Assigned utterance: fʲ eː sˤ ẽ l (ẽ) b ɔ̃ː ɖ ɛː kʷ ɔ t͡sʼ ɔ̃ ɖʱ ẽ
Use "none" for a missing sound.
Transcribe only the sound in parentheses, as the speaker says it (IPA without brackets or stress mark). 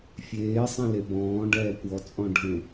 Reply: e